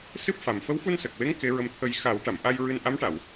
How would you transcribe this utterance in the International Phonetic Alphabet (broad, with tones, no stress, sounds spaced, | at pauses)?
s ɨ˦˥ p̚ f a˨˩ m f ə˧˥ w f u˧ n s ə˨˩ k̚ w e˧˥ ŋ k e˧˥ ɹ ə˧ m t̪ʰ ə˧ j x a˨˩˦ w ʈ a˨˩˨ m ʔ a˧ j ɹ ɨ˧ n ʔ a˧˥ m ʈ a˨˩˨ w